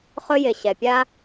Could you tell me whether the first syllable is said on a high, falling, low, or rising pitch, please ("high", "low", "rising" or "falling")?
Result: high